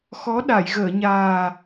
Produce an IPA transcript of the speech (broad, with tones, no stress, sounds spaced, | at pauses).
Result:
x ɔ˧˥ ɗ a˨˩˨ j ɣ əː˨˩˨ ɲ aː˨˩